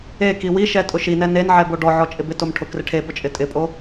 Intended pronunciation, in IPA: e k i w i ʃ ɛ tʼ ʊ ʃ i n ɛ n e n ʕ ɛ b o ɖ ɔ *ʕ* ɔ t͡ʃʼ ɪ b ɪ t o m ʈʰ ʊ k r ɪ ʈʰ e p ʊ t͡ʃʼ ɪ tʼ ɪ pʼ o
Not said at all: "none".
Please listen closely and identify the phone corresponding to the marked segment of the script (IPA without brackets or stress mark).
ʕ